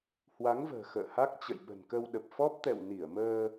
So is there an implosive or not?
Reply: yes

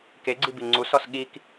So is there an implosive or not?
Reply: yes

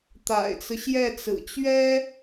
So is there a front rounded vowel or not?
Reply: no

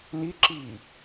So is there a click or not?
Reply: yes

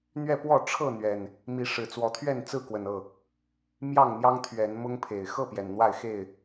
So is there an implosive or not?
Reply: no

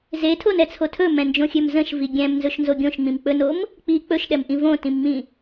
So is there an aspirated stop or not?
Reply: yes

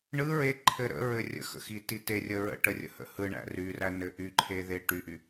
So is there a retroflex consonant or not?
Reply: yes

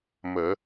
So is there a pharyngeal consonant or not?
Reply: no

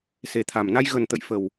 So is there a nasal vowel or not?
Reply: no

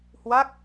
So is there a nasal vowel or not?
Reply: no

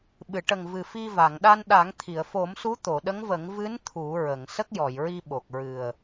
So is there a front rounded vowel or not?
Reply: no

